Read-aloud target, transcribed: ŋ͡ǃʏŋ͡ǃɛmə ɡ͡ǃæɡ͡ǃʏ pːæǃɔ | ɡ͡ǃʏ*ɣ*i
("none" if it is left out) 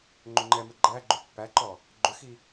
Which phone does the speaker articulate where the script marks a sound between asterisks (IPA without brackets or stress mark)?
x